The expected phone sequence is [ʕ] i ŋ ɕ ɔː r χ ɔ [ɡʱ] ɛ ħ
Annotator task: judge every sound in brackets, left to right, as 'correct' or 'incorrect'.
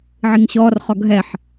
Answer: correct, correct

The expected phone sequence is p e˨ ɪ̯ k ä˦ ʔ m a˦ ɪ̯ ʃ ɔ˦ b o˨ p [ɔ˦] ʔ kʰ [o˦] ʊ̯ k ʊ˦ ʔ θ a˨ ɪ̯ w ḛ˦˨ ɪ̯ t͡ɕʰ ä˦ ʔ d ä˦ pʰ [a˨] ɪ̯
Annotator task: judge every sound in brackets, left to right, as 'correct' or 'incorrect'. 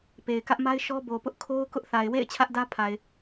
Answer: incorrect: ʊ˦, correct, correct

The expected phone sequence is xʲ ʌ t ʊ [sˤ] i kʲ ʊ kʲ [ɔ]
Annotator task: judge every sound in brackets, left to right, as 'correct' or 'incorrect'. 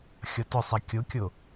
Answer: correct, incorrect: ʊ

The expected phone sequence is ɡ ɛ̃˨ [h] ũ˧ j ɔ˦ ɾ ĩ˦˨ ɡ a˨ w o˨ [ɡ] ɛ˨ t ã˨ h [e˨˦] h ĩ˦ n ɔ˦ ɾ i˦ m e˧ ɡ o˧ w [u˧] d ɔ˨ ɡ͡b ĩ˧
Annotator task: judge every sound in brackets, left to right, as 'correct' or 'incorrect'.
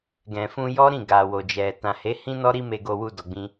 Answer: incorrect: f, incorrect: d͡ʒ, correct, correct

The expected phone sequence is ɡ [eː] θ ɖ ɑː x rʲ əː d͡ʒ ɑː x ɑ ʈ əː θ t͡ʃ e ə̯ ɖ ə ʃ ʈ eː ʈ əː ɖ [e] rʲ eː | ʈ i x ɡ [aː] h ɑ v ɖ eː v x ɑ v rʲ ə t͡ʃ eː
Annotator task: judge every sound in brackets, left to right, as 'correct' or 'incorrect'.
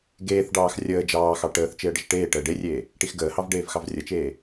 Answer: correct, correct, incorrect: əː

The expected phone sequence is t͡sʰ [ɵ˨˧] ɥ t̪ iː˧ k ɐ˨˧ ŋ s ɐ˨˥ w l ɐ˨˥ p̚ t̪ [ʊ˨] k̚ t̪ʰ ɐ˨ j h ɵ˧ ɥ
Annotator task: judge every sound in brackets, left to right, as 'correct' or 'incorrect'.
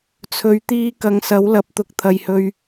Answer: correct, correct

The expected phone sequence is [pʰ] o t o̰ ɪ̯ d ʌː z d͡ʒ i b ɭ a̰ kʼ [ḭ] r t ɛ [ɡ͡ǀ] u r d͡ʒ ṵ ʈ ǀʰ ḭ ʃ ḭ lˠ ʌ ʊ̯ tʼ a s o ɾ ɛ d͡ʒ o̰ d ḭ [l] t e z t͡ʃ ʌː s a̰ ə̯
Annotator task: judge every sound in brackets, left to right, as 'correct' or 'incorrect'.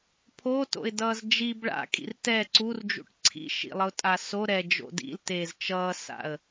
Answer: correct, correct, incorrect: ǀ, correct

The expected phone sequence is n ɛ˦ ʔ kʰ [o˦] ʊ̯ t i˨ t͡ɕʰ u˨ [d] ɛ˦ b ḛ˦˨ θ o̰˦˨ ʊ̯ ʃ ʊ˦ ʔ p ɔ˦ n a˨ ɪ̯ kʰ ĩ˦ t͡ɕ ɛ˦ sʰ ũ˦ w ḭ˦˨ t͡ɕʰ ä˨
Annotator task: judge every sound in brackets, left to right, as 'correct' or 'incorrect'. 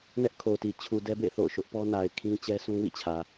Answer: incorrect: o˨, correct

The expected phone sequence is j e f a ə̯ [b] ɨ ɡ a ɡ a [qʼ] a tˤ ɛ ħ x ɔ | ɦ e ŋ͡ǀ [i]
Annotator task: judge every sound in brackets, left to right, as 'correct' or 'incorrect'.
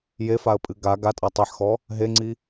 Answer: incorrect: pʼ, incorrect: tʼ, correct

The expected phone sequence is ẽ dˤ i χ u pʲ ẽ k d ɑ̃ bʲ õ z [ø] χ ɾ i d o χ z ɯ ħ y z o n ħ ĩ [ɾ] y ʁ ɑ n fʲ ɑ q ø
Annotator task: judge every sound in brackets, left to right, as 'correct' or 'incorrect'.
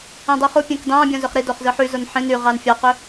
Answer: correct, incorrect: n

